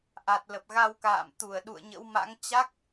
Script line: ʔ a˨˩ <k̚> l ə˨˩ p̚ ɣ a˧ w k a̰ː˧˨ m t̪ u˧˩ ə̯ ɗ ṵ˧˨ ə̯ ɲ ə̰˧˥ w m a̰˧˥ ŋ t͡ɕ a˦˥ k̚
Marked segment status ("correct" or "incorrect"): incorrect